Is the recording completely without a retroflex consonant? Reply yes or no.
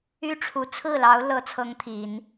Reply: no